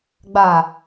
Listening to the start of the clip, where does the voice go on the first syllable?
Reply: low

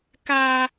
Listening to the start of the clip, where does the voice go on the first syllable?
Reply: high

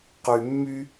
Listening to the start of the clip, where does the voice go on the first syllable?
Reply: low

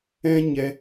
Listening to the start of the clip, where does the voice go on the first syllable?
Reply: high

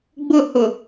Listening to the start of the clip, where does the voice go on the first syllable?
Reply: falling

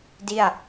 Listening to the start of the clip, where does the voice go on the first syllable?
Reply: falling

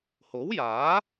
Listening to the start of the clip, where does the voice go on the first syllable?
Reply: rising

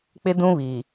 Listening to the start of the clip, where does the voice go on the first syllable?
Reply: high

